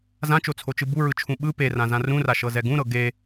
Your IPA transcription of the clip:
zãt͡ʃot͡sʰot͡ʃɯ buɹɯt͡ʃʰũ ɓɯ perãzã rũraʃɤzɛ ɡũɾɤ ɡe

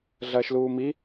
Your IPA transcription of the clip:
ɮɐːʃluːmi

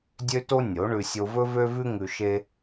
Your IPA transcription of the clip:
dʲø˦to˦ nʲo˨˦ɳʉ˧ sʲo˧vɵ˦vø˦vʉ˦ ŋʉ˧ʃe˦

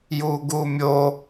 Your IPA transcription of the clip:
juɡumʲo

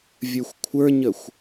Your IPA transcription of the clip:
vʲə˞xʷkʷʰə˞ɲəxʷ

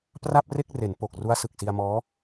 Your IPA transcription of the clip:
pra˥˩p̚re˥˩k̚ re˩˦n po˨˩k̚ ru˦˥a̯sɯ˨˩k̚si˧a̯mɔː˦˥

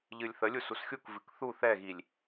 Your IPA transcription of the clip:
ʎɨlʲθəlʲu susxʲukvɨk θu θɛɣilʲ

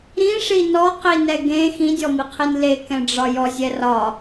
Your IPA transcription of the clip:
ɾĩʂi nɔqinɛ ɡẽ xĩdʲɔmiqʰin lekɛ̃ɖ͡ʐɒ jɔzʲɛ rɒ

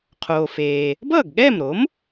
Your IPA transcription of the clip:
qʰoː˩feː˩ | bʌː˥˩ɡɠɛː˥˩mɾo˩˥m

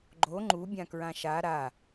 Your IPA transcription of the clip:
ɡ͡ǃo ŋ͡ǃu bʲãkɹãʃa ɾa

